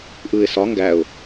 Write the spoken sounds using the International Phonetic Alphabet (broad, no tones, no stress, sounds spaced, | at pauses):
ʔ ɯ ɪ̯ s ɒ ŋ ɡ æ ʊ̯